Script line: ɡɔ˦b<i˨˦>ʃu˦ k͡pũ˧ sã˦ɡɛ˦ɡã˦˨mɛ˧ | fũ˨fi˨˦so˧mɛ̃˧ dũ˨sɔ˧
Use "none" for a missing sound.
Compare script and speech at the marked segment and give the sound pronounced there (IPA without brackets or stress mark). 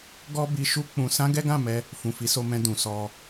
i˧